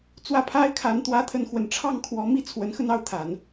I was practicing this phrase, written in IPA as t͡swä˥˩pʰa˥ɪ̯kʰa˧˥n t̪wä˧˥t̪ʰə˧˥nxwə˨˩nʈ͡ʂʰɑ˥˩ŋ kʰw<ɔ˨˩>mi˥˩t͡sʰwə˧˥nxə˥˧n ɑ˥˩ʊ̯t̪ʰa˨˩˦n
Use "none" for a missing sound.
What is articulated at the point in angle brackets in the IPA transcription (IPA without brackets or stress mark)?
ɔ˧˥